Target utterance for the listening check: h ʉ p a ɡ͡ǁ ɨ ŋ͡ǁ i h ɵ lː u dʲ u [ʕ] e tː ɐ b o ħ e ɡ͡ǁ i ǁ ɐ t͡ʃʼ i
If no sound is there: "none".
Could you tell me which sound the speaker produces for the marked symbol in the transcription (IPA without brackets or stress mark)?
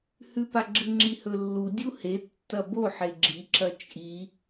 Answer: h